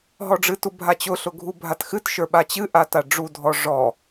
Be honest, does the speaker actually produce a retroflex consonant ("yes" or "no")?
yes